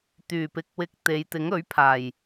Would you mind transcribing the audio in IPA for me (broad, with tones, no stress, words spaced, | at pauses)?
t̪yː˨˩pɪ˨k̚wɪ˨˥k̚ t̪e˨˧j t̪ɪ˨˥ŋɵ˨˥ɥ pʰaː˨˩j